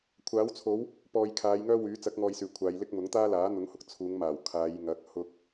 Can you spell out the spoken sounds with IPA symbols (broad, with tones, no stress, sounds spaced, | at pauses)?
kʷʰ aː˨˥ w t͡sʰ o˨˥ w | p ɔː˨ j kʰ aː˨˧ j ŋ œː˥ w yː˨˥ t͡s ɐ˨˥ k̚ ŋ ɔː˨ j s yː˨˩ kʷʰ aː˨˧ j l ɪ˥ k̚ m ʊ˨˥ ŋ t̪ aː˥ l aː˨˥ n̪ ʊ˨˥ ŋ h ʊ˨ k̚ t͡sʰ uː˨˧ ŋ m aː˨˩ w kʰ aː˨˧ j ŋ ɐ˨˥ k̚ h ʊ˧ k̚